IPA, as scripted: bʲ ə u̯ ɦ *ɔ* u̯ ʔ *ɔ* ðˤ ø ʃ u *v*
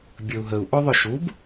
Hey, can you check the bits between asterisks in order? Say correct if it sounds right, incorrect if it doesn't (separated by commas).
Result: incorrect, incorrect, incorrect